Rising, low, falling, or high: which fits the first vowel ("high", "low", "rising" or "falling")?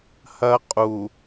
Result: high